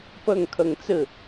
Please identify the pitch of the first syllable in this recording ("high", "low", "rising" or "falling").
falling